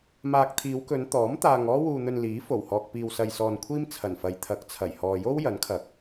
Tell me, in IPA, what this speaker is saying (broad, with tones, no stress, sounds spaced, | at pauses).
m aː˨ k̚ t̪ʰ iː˨˧ w k ɵ˨˧ n t̪ ɔː˨˥ m t̪ aː˧ ŋ ɔː˥ w uː˧ n̪ ɵ˧ n l iː˨˥ f o˨˩ w h ɔː˨ k̚ p iː˧ w s ɐ˧ j s ɔː˧ n kʷʰ iː˥ m t͡sʰ ɐ˨˩ n f ɐ˨˧ j t̪ʰ ɐ˨˥ k̚ t͡sʰ ɐ˨˩ j h ɔː˨ j o˥ w j ɐ˨˥ n kʰ ɐ˨ k̚